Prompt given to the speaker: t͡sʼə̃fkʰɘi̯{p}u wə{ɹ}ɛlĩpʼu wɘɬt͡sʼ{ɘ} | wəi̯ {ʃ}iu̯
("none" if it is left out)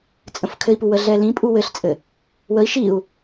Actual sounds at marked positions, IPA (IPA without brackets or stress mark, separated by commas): p, ɮ, ɘ, ʃ